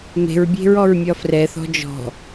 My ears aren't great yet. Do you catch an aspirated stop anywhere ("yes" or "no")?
no